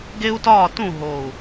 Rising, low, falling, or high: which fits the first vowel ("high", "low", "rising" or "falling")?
high